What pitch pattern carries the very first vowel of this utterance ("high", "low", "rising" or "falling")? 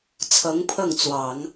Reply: rising